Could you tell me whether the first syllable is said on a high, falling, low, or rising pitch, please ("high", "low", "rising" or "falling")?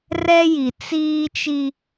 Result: high